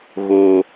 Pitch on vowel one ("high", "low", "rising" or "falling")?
low